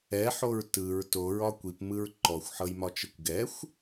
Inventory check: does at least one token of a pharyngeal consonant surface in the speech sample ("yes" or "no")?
yes